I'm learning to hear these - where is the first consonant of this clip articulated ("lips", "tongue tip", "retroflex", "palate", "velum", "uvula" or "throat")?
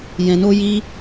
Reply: palate